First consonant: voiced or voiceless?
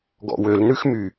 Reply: voiced